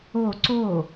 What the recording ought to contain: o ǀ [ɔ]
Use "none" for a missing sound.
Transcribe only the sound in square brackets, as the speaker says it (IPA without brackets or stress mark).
o